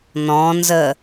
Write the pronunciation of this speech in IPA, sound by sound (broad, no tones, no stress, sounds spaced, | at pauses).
n ɔ̃ n z ə